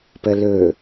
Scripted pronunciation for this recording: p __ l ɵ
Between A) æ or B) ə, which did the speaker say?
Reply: B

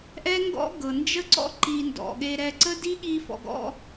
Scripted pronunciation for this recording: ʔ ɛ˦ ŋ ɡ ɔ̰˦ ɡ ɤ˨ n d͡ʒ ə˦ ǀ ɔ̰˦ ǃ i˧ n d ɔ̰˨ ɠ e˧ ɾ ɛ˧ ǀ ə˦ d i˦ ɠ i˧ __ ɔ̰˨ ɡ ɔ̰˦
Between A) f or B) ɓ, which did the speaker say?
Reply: A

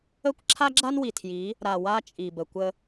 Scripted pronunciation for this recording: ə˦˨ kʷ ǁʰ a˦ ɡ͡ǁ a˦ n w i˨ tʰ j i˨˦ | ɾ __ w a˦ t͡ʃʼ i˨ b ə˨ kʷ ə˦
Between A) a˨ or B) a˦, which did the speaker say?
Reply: A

